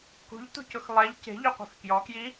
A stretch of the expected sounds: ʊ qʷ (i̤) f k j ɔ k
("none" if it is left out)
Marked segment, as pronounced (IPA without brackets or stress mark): i̤